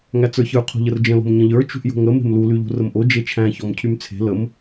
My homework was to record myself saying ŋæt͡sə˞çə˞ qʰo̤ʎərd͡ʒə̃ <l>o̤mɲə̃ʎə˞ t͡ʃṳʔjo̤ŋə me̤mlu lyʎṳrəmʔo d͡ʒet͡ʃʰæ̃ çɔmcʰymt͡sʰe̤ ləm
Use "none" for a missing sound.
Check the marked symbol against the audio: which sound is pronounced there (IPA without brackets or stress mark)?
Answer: l